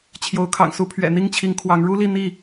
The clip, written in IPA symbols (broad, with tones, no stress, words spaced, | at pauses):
t͡ɕʰjo˨˦ʊ̯kʰɑ̰˨˩ŋsu˨˦pʰɥɛ̰˨˩ n̪i˦ŋt͡ɕʰi˨˦ŋkʰwɑ˨˦ŋ ɻu˦li˥˨ n̪i˥˨